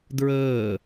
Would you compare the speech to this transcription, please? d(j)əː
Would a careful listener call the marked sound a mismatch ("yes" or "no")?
yes